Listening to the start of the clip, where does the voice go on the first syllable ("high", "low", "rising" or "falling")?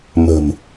low